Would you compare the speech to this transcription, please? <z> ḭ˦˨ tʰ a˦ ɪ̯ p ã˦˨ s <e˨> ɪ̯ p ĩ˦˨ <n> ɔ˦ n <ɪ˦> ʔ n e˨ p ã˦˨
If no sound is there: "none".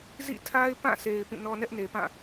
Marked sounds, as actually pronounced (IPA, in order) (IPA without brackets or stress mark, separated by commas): z, e˨, n, ɛ˦